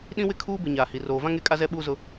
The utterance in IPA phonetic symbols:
ɗĩ˦wɪ˦kʰuː˦bɪ˨ ɲaː˨hi˨ roː˨vã˦ ŋe˦kʼa˦ zɛ˦ ɓuː˦zʊ˦

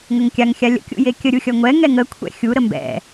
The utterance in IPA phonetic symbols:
ŋəŋkʲaŋ xʲalʲə̰ kʲṵjekʲə ɾʲuxʲʌŋʷɛ ŋɛŋə kʷʰɛ̰xʲu ɾəmbɛ̰

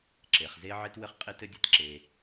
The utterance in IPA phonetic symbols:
ǁe˨χze˦ ʕe˦twɘ˦χqʼe˦t ɘ˦dʲɘ˦˨t ǁe˦

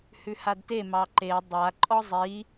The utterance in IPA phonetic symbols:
hʉhadte mɑǃe dˤa ǃʼɔzˤi

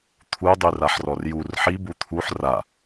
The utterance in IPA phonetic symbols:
t̪ʰudˤyraħrɔr jur ħibu t̪ʰuħ ra

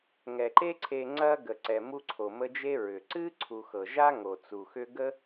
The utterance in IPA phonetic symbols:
ŋɛ˩ǃe˦ǀʰe˨ ŋ͡ǀɐ˦ ɡə˩ǀɛ˩ mu˦ǀʰo˩mə˦d͡ʒe˥ ɹʏ˩ǀɨ˥ǀʰu˨ xɤ˩ʒa˥ŋo˩t͡su˩ xʏ˦ɡə˥

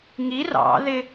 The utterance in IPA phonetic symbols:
ŋi rɑ̰ðɪ

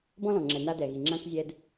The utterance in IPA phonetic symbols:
bɔ̃˦lɔ̃˨ŋ͡ǁɛ˨ na˦dɛ˨ɣi˨ ŋ͡ǁã˦kzʲɛ˦d

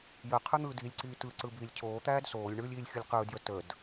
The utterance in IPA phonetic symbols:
jə qʰɯn̪ɯːdilʲǀiː tɯǀɯ biːlʲcʰoːt̪æːd soːlʲɳɯːlʲiːlʲ xʲɯlʲqɯːdjə təd

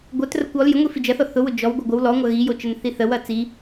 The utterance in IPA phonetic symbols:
ɡʷœtrəkʷ ɔl jəŋʷifi d͡ʒɐθɔ θʊwʊ d͡ʒɔwɡʷə ɡʷəw lɔŋʷɐ ɣijot͡ʃənθi θəwɐ t͡si

